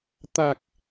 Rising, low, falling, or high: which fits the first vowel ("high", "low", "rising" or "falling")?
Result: low